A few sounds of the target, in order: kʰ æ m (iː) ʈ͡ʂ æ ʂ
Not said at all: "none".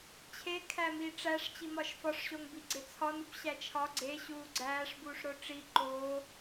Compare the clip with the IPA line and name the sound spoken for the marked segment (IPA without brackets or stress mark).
iː